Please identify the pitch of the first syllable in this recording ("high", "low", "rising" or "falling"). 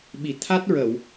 low